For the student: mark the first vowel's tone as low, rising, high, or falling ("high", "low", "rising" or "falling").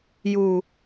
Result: low